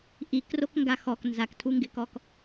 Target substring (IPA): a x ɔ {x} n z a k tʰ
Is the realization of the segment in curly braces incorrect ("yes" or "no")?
yes